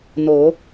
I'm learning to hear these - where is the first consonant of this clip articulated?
tongue tip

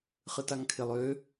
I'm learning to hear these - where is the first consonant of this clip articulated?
uvula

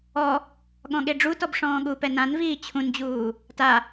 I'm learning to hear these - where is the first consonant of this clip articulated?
velum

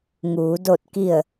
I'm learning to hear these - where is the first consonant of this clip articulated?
velum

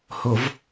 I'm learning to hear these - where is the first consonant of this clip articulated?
throat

